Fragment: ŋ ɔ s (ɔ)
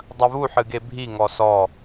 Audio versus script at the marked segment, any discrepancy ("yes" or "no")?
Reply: no